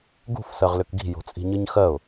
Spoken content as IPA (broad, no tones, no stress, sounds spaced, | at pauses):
ɡ ṳ f s ɜ ʁ l ʏ k ɡ i̤ j o̤ t͡sʼ i̤ ɲ ɨ ɲ x ɜ ʊ̯